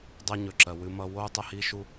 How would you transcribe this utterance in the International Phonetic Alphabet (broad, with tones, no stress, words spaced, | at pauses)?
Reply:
dˤɛ˦ɲɵ˨ǁɜ˨ wɨ˦mʌ˦ wo˦u̯ tˤə˦hi˦ʃu˦